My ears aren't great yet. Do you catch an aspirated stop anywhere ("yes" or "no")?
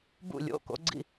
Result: no